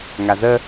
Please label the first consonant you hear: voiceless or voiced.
voiced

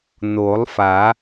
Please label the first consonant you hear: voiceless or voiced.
voiced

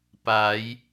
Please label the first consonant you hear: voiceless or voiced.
voiceless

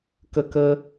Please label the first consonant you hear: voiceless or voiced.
voiceless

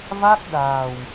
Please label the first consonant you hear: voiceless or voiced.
voiced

